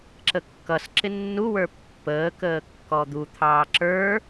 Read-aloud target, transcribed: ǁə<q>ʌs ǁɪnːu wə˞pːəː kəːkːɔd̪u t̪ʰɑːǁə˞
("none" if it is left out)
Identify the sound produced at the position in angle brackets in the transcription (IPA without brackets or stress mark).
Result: kː